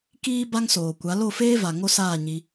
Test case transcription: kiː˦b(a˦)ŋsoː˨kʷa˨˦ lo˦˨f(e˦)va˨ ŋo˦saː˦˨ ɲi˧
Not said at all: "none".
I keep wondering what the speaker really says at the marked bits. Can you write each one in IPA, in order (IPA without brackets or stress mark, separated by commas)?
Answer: a˦, eː˦